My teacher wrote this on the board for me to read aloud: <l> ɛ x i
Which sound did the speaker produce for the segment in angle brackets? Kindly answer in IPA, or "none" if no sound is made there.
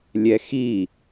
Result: lʲ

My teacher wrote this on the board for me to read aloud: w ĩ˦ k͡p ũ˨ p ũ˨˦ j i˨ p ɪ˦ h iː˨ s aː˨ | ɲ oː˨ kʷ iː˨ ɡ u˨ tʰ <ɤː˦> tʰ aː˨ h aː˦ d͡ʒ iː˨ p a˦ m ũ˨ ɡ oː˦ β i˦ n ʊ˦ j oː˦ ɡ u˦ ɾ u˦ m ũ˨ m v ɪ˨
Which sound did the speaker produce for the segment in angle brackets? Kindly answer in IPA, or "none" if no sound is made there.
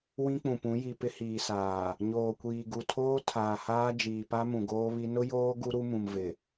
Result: oː˦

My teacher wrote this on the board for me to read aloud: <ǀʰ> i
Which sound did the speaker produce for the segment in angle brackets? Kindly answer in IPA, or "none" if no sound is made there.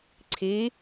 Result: ǀʰ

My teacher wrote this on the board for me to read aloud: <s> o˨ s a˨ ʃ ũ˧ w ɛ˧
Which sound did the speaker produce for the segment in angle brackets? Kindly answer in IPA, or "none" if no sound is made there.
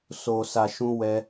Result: s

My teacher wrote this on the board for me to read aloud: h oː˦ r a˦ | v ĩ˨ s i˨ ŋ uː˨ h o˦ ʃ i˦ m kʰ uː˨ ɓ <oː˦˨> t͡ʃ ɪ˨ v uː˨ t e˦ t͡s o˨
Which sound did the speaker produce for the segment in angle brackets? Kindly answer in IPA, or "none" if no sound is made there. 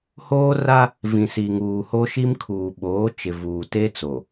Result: oː˨˦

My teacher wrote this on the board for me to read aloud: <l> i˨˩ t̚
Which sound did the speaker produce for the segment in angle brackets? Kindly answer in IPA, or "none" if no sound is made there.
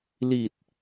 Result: l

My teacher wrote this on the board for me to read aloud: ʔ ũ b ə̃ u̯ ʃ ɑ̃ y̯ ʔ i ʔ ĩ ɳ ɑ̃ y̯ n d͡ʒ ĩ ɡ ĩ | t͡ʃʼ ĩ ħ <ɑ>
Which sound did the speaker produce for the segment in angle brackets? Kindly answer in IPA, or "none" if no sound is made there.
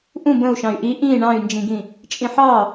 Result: ɑ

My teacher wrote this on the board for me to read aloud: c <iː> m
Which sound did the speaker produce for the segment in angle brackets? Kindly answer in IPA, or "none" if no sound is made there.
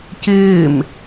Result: ɪː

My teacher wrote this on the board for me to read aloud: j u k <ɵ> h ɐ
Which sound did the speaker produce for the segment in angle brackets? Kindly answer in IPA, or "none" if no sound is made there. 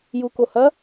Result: o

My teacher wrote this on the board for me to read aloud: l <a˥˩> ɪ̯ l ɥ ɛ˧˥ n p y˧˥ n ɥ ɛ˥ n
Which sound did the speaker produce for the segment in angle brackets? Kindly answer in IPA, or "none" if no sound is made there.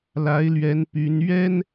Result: a˧˥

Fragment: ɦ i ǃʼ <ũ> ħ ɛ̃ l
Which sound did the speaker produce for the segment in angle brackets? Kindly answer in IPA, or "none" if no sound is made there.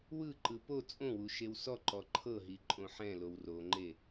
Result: õ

